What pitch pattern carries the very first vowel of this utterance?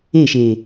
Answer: falling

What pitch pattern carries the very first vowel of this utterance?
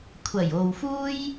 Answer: low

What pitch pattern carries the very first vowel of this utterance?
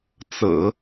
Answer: low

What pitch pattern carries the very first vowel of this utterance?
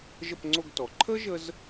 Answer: falling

